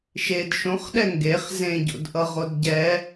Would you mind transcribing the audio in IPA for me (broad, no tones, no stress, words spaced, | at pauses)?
ʃed ʃõχɗɛ ŋɡeχ zẽɟo̰dʔʌʁod ɟɛ